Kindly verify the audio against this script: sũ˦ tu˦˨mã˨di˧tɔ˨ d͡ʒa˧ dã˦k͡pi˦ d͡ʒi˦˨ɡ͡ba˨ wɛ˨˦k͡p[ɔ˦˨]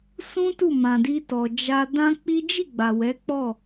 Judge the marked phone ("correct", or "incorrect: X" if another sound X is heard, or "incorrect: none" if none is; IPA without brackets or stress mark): correct